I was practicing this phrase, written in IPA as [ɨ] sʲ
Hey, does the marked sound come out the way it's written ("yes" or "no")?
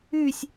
no